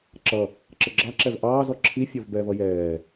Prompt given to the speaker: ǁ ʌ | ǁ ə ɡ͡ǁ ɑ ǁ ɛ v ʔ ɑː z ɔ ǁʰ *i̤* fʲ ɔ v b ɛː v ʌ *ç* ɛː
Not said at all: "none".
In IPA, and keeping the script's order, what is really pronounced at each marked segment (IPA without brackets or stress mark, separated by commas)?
i, j